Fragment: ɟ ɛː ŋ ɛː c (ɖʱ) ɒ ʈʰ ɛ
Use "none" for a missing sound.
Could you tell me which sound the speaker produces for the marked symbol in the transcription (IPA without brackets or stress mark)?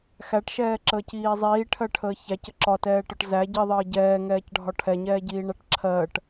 ɖʱ